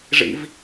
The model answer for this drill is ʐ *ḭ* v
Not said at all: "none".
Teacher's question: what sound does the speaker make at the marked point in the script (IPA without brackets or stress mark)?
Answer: ḭ